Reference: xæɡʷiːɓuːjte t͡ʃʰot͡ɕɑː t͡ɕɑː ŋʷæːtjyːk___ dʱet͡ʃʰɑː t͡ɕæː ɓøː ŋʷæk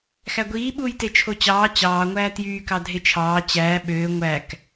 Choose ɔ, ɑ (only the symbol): ɑ